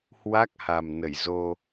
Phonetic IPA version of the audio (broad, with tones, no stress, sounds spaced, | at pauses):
h w a˦˥ k̚ h a˨˩ m n ə˧˩ j z o˧